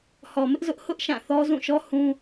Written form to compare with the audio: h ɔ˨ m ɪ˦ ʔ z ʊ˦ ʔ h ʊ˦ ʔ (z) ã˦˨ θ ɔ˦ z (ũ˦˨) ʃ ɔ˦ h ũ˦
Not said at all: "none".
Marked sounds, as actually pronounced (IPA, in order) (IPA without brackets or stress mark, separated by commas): ʃ, ũ˦˨